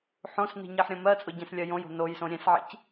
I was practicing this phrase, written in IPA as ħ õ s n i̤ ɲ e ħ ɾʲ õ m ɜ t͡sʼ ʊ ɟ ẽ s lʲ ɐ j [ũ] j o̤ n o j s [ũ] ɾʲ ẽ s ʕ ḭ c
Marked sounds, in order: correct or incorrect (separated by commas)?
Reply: incorrect, incorrect